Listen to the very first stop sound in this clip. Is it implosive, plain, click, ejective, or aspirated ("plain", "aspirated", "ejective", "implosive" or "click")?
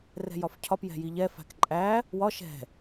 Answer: aspirated